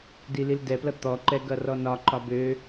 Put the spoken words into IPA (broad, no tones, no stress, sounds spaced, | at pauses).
d i l i l d ɛ p l ʌ t̪ ɔ ǃ ɛ ɡ ʌ r ɔ n ɒ ǃ ɒ b ø